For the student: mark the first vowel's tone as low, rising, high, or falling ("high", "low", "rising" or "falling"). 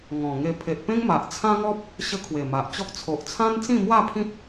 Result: low